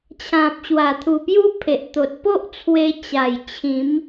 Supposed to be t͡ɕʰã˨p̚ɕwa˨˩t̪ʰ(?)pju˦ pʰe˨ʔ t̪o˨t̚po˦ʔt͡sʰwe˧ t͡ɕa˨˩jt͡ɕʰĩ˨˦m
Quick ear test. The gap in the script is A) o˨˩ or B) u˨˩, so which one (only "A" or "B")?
B